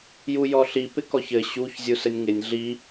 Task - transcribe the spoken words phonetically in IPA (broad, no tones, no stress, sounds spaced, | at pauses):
j u j ɔ ɬ i p ɪ k ɔ ç ɘ ɕ u ç zʲ u s ɘ nʲ ŋ ɪ nʲ ɮ i